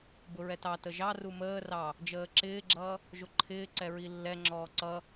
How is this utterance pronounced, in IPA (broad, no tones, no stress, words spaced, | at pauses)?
bʊɹɛtɑtə ʒɑru məː rɑ | d͡ʒəːǁɪːɡ͡ǁʌː | ʒʊǃʰɪːǀɛ ɹilːɛŋ͡ǁɔː ǀʌ